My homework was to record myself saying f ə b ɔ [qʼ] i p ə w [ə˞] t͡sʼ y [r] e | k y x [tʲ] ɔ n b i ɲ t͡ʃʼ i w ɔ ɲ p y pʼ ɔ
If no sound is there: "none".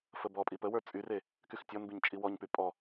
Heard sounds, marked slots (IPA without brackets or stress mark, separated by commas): pʼ, ə˞, r, tʲ